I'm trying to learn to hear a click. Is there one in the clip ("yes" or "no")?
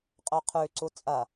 yes